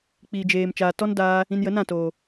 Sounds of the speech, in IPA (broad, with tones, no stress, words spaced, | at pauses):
k͡piː˨d͡ʒeː˨m t͡ʃaː˨tɔ˦ndaː˧ | ĩ˧njə˨˦nã˦˨toː˨